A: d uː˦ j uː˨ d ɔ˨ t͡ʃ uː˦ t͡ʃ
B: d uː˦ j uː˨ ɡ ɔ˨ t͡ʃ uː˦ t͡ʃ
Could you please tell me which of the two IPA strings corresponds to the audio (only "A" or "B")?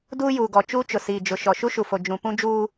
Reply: B